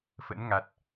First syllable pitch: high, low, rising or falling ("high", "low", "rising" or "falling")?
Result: rising